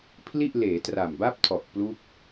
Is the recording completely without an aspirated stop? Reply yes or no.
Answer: no